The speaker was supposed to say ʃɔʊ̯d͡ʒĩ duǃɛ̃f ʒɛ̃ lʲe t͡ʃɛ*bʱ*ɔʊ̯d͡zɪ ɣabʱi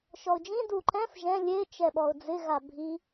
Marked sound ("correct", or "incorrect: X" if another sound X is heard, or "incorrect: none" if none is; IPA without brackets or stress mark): incorrect: ɓ